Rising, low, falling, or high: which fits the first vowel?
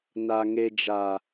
low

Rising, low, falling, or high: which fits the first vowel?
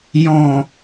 low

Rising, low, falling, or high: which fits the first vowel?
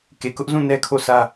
low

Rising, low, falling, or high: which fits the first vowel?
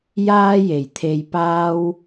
high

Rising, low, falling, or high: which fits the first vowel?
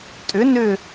rising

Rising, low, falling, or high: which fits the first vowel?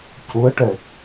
rising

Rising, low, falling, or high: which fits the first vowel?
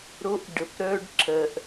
high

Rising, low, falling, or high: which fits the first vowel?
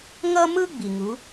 high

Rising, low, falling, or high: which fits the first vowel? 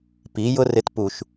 rising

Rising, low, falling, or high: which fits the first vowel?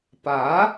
rising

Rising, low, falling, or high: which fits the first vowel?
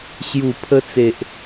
low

